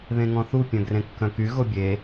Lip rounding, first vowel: unrounded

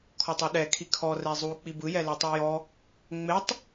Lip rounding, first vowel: rounded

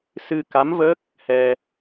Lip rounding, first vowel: unrounded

